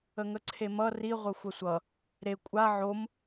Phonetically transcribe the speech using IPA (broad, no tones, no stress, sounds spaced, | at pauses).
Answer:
ə ŋ ə ǀʰ e m ʌ r i ʁʷ ʌ xʷ ɐ sʷ ʌ | ɾ e kʷʼ a ʕ o m